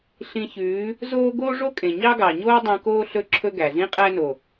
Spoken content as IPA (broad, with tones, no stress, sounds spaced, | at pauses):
ɬ ĩ˧ ç ʉː˨˦ | z oː˦ ɡ oː˦ ʐ o˦ kʼ ẽ˨ ɲ ɑ˦ ɡ ɑ˨ ɲ oː˦ dˤ ĩ˧ k oː˦ ɬ ɵ˦ ǁʰ ɵ˦ ɡ æ˨ z ĩ˦ qʼ æ˦ n o˨